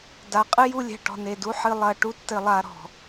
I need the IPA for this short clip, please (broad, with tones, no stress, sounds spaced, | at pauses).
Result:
d a˨ qʼ ɨ˦ j u˧ lʲ ɛ̤˨ ʈ ɔ̤˨ n e˨ d u˦ ħ ɨ˧ lˠ ɐ˧ ʈ u˦ tː ɘ˧ lˠ a˧ ɾ ɔ̤˨